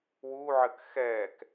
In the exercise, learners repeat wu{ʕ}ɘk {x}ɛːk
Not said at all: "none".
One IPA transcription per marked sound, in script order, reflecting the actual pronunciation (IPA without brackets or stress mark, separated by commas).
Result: ʕ, x